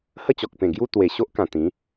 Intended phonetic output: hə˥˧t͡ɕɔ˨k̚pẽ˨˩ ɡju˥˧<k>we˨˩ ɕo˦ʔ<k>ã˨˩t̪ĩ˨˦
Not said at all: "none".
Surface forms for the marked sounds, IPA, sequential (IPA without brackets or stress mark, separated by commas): t̪, k